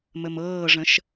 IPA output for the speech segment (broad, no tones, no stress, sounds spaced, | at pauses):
m ə m ɤː ʐ ə̃ ʃ